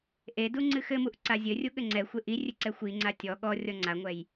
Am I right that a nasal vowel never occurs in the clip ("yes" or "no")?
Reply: yes